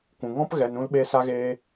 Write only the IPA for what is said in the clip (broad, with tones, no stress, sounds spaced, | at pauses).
kʷ ũ˨ ŋ ɔ̃˦ p ɣ ɛ˧ n ũ˦ l ɓ e˦ s a˦ ɣ eː˦